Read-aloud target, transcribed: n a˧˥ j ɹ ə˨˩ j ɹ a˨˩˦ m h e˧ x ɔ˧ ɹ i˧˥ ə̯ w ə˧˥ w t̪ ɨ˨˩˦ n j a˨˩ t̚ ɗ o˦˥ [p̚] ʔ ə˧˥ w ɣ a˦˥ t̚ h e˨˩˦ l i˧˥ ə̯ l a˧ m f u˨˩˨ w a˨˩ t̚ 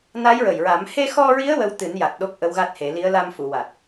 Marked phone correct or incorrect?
incorrect